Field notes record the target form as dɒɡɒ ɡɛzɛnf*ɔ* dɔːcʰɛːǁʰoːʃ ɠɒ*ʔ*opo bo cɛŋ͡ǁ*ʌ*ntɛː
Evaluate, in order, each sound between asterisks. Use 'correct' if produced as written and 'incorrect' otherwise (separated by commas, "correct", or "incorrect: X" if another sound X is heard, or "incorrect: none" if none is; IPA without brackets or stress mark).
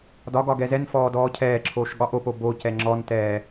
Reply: incorrect: ɔː, correct, incorrect: ɔ